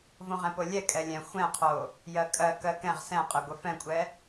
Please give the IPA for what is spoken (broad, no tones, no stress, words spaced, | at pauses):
võʁɛ̃polʲɛ kʼɛlʲɛ̃ xʷɛ̃qʰo | jɜkʼɜkɜ kɛ̃ʁ sɛ̃qʼɛ ɡʷɛfɛ̃kʷʼɛ